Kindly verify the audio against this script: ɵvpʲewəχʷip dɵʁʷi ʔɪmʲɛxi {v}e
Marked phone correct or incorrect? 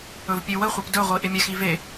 correct